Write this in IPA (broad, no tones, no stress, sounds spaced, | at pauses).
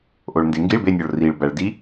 ʔ o ɭ n d e ŋ ɡ i ɭ b e nʲ ɔ ɭ r i ɭ b æ ɭ d i